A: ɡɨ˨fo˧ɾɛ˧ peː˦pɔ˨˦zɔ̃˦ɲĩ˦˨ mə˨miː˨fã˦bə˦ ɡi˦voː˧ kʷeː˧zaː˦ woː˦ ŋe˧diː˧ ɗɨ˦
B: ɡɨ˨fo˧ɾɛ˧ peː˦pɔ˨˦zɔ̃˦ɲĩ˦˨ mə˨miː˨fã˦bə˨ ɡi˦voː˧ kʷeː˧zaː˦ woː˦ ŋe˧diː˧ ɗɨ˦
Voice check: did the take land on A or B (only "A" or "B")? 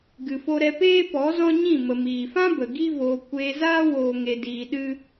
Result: B